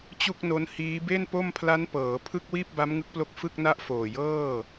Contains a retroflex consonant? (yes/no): no